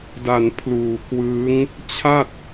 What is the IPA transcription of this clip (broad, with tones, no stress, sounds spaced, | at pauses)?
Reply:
d a˨˩ n pʰ l uː˨˩ k w ɯː˦˥ ŋ | t͡ɕʰ a˥˩ t̚